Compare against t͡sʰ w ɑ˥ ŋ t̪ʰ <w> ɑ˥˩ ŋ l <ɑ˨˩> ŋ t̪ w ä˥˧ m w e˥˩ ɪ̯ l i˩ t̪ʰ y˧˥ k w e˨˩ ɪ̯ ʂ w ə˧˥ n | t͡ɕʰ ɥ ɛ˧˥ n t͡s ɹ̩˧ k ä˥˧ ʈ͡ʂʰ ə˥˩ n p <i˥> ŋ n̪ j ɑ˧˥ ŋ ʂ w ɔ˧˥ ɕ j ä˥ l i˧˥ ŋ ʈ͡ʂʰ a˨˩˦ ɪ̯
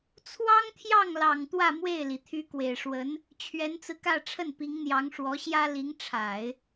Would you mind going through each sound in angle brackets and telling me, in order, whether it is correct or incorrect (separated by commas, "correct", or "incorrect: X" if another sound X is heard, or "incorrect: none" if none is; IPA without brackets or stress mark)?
incorrect: j, correct, incorrect: i˧˥